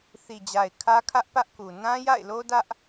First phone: θ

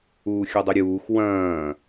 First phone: uː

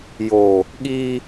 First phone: j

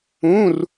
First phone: ũ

